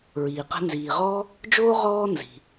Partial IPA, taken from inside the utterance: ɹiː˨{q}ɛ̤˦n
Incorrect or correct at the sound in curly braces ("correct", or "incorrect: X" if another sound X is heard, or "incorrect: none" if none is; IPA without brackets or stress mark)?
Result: correct